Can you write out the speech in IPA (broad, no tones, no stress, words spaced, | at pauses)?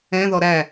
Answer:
ɛ̃ðɔ ɾæ